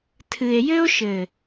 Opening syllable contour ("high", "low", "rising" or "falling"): low